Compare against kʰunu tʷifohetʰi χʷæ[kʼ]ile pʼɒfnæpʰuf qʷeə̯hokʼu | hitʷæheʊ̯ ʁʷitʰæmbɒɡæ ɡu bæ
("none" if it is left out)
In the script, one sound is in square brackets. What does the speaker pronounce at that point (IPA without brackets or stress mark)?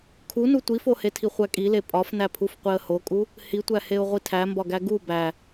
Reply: kʼ